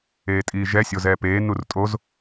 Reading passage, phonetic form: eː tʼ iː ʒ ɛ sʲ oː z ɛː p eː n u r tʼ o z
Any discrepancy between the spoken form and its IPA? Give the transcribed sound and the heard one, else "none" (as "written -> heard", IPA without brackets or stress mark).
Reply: oː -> o